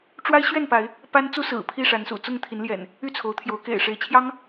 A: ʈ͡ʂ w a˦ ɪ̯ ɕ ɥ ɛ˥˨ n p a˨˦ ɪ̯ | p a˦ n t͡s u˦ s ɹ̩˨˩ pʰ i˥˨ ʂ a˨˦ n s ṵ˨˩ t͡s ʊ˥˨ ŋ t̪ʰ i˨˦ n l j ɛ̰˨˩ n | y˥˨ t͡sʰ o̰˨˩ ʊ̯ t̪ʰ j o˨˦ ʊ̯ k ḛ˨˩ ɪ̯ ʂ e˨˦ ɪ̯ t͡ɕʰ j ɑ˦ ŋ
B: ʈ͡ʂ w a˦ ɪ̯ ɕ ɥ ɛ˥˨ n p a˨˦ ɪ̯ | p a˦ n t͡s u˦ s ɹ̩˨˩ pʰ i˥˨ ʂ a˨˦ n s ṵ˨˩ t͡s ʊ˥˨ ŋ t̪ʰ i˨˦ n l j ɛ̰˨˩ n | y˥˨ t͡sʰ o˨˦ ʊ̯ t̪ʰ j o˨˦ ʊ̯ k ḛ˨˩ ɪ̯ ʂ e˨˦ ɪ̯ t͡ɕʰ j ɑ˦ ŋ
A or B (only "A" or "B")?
B